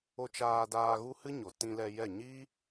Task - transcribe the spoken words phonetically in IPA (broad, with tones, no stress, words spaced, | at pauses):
o˧t͡ʃaː˧daː˧ ɣu˦hɨ˦ɲo˨ tĩ˧lɛ˧jɛ˦˨ ɲi˦